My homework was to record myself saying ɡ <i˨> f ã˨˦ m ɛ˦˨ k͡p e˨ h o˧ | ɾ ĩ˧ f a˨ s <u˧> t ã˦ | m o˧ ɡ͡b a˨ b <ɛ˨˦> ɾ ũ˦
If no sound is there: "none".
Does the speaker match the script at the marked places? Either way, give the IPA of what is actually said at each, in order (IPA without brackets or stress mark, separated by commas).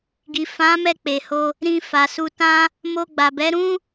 i˨, u˧, ɛ˨˦